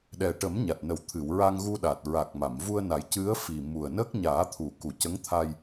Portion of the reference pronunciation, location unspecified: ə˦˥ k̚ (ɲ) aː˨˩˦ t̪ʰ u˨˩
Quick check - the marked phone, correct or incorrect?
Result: correct